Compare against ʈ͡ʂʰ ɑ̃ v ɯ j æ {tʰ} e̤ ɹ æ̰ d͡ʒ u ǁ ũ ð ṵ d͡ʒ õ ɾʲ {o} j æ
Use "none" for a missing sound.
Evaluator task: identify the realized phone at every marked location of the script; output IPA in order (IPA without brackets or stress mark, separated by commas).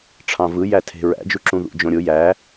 tʰ, o